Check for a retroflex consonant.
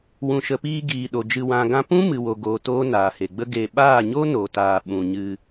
absent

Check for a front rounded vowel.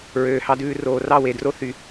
present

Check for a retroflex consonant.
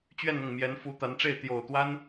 present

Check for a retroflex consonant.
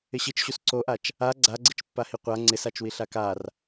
absent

